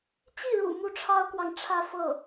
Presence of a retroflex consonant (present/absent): present